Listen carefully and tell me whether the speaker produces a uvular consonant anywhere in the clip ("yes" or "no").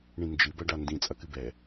no